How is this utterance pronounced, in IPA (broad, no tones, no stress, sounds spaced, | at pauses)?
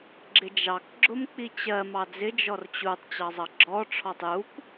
ɡ͡ǁ ɪ d͡ʒ ɑ k ɡ͡ǁ ʊ m k͡p i t͡ɕ ɜ m ɑ d͡z ɪ d͡ʒ ɔ r t͡ɕ u tˤ t͡ɕ ɑ zˤ ʌ ɡ͡ǁ ɔ ʈ͡ʂʰ ɔ tˤ j u k